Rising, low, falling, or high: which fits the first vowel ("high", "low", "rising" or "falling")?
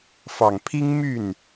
low